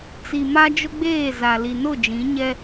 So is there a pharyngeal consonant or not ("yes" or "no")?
no